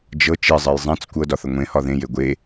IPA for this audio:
d͡ʒ ɤ t͡ʃ i zˤ e j zˤ ẽ t͡s kʷ ɤ d ɒ θ ə ŋʷ ẽ h ɒ ð ẽ j e ɡʷ e

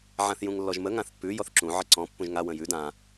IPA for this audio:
ʕ ã θ j ũ ŋ lː ɔ ʒ m ə ŋ ã θ pː ʉ j ɔ θ ǁ ũ ʕ ɪ ǀ ɔ̃ pː ũ ʒ ŋ a w ə̃ j ʉ d ã

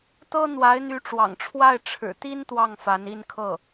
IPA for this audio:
t̪ ɤ˥ n̪ w a˧˥ ɪ̯ n̪ y˧˥ ʈ͡ʂ w ɑ̰˨˩ ŋ ʈ͡ʂʰ w a˥˩ ɪ̯ ʈ͡ʂʰ ɻ̩˨˩ t̪ i˥ n t̪ w ɑ˥˩ ŋ f a˧˥ n i˥˧ n kʰ ɤ˥˩

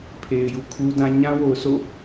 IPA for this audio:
pʰ e˨ ɪ̯ j u˨ kʰ u˦ d ã˦ ɲ ã˦ w o˨ ʊ̯ sʰ o̰˦˨

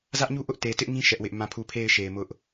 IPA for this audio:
z ä˦ ʔ ɲ u˦ ʔ ʊ˦ ʔ t e˨ t ɪ˦ ʔ ŋ ĩ˦ ʃ ɛ˦ ʔ w ɪ˦ ʔ m ã˦˨ pʰ u˦˨ pʰ e˦˨ ɪ̯ ʃ e˨ ɪ̯ m ʊ˦ ʔ

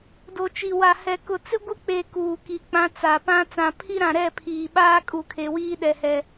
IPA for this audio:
d o˨ t͡ʃ i˨ w a˨ h ɛ˨ k ʊ˨ t͡s ɪ˦ ɡʷ ɪ˦ k͡p e˨ k uː˨ k i˨ k͡p ã˦ t͡s a˨ p ã˦ t͡s ã˨ pʰ i˦ ɾ ã˨ ɾ ɛ˦˨ pʰ iː˨ ɓ aː˦ kʼ u˨ kʰ e˨ w iː˦ ɗ ɛ˨ h ɛ˨

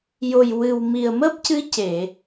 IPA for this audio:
j o˨˩ j w ɨ˨˩ w m i˨˩ ə̯ m əː˦˥ p̚ c ɨ˧˥ c e˨˩˨

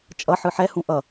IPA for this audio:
t͡ʃʼ ʌ ħ ɯ ħ ɛ h ũ ʔ ʌ

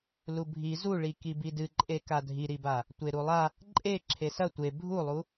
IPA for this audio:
l u bʱ i z u ɭ i k i b i d ɨ ǃʼ e k a dʱ i ɾ i b a | tʷ e ɾ u lˠ a | ǃʼ e ǁʰ e s ɐ tʷ e bʱ u lˠ u

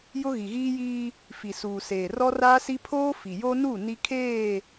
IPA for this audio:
j ʊ˦ ɣ i˨ ɣ iː˦ j iː˦ | f i˨ s uː˨ s eː˨ r ɔ˦ r aː˦ s i˦ pʰ oː˦ f i˨ j o˦ n u˦˨ n i˦ kʰ eː˦˨

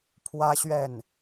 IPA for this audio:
pʰ w ä˥ ɕ ɥ ɛ˥˩ n

